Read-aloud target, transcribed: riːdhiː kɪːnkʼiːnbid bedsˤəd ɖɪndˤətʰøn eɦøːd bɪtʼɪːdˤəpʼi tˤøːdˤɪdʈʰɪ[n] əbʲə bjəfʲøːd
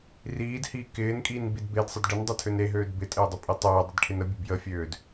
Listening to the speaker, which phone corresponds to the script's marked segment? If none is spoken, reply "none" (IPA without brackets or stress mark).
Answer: n